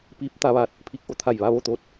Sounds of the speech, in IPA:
p iː˧˥ p̚ t̪ a˩˧ ʋ aː˧˩ t̚ | pʰ i˧ k̚ ʔ o˧ t̪ʰ a˧˩ j ʋ a˥˨ ʋ o˥˨ t̪ oː˧ t̚

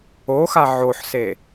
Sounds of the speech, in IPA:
o x a ʕ o ħ s e

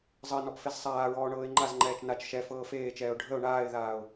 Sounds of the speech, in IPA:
zˤ ə ɪ̯ n ɔ p f e z sˤ aː ɹ ɔː ɳ ɤː ɪ̯ ŋ͡ǃ a z ŋ͡ǃ ɛː t͡ʃ n a t͡ʃ ʃ ɛ f ɤː f eː t͡ʃ ɛː ʊ̯ ɖʱ ə ʊ̯ ɳ aː ɪ̯ ð aː ʊ̯

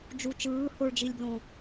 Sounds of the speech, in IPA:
d͡ʒ u t͡ʃ ɯː h o ɭ d͡ʒ i lʲ b l õ

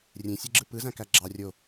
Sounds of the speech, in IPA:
rʲ ẽ sʲ e ɡ͡ǁ ɯ p ɯ z æ̃ k æ ɡ͡ǁ ɑ rʲ o

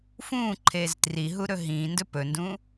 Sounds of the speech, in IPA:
f ũː ǃʰ eː z t r i ɦ u ɾ ɵ ɦ ĩː n d ɵ p ɵ n d ũː

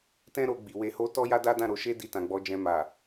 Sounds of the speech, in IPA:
t ɛ̃˦ ɾ o˧ ɡ͡b i˨ w e˧ h o˦ t ɔ˦ j a˦ d a˦ d ã˦˨ ɾ o˧ ʃ e˦ d i˧ t ã˨ ɡ͡b ɔ˨˦ d͡ʒ ɛ̃˧ m a˨

